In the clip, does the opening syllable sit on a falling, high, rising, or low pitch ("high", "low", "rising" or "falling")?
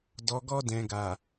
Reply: low